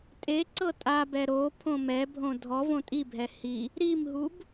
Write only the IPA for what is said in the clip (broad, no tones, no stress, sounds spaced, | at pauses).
tʼ e ǀ ɤ tʼ a b ɛ ɾ o pʰ õ m ɛ bʱ õ dʱ ɔ v õ tʼ i bʱ ɛ h i | ɾ i m ɦ u b